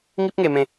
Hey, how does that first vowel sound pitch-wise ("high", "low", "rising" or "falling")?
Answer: high